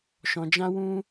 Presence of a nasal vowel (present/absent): present